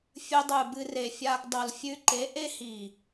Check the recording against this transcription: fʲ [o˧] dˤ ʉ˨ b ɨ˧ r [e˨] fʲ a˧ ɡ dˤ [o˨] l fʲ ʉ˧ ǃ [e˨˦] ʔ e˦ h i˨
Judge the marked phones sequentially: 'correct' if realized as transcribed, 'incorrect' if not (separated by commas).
incorrect, correct, correct, correct